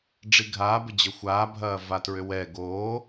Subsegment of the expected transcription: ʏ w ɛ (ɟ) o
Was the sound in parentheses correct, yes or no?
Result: no